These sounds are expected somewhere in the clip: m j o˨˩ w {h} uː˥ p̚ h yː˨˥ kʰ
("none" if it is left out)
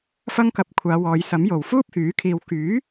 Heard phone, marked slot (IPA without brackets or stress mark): f